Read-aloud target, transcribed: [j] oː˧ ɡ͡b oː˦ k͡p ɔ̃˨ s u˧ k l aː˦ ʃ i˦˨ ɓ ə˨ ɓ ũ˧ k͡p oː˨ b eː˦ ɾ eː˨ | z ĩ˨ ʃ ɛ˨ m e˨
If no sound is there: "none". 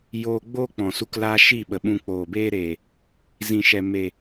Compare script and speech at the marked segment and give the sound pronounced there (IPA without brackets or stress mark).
j